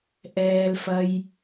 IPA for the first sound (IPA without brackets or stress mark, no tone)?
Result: ʔ